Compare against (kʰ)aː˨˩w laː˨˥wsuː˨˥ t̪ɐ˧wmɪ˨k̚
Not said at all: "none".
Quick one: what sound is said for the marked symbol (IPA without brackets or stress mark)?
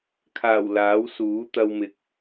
kʰ